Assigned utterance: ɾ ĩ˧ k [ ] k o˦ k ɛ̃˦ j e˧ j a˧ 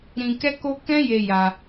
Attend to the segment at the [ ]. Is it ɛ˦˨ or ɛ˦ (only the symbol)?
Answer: ɛ˦